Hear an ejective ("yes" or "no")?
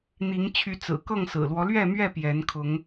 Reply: no